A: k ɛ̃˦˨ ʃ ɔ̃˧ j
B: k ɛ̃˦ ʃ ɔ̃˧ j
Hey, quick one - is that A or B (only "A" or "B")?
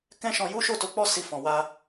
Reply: B